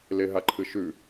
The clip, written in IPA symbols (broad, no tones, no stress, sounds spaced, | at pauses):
l e ɦ a ǃʰ ɨ ʃ ʉ